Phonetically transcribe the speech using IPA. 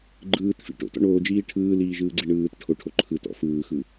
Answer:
ɡ͡ǃ ɯː t f ḭ ʈ o̰ t ɔ̰ ɳ oː d͡ʒ iː ʈʰ ɯː l iː ʒ ɯː ɡ͡ǀ i ɳ ɯː t ʈʰ o ʈʰ o ǃʰ ɯ t ɔ̰ f ɯː x ɯ

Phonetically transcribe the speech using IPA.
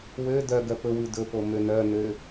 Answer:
w ø d œ ɡ œ p ɵ w ʉ d ɵ p o m ø n œ n ø

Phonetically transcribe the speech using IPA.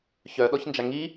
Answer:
ç œ ɗ ɔ ç n d͡ʒ a ŋ i

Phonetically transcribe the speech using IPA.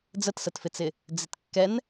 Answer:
d͡z ə t s ə t f ɪ t͡s ɪ | d͡z ɪ t kː ɛ n

